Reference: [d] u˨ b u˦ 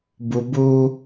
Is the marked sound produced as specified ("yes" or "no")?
no